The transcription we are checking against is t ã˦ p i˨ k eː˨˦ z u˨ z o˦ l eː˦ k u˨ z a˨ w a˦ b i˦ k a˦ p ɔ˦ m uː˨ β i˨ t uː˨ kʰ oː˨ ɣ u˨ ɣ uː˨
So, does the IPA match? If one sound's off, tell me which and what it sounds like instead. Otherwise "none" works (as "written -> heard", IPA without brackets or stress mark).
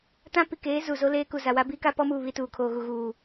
none